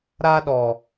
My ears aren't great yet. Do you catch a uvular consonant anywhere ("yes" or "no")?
no